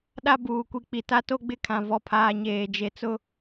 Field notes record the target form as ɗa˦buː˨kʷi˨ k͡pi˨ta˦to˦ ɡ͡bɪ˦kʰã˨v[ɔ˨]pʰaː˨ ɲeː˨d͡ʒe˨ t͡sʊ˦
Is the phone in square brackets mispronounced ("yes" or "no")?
no